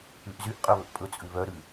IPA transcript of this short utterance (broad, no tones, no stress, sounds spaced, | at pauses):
ʉ ʔ z y ʔ qʼ œ β ɵ ʔ pʼ ɵ t͡sʼ ʉ β œ ɾ ʉ